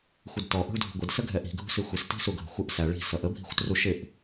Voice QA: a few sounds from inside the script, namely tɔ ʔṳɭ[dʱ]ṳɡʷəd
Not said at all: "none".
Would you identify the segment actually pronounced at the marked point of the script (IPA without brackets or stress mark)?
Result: dʱ